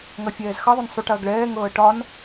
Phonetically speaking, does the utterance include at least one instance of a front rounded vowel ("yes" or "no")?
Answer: no